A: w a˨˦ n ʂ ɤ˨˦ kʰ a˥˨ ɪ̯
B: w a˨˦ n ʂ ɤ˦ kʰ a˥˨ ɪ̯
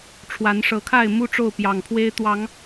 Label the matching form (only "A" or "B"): A